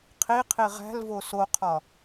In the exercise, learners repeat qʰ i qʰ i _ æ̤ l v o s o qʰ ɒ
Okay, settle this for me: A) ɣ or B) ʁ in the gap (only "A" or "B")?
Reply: B